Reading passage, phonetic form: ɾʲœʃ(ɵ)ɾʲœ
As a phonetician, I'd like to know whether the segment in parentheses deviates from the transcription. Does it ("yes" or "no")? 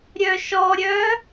yes